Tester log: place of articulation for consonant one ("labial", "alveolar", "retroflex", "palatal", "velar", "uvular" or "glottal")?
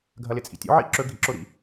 velar